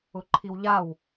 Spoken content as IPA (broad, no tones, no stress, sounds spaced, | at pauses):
ʊ ǃʰ i w ʎ a w